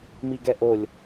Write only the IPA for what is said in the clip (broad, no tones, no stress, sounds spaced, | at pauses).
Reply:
m i ɡ ɛ ʔ o lʲ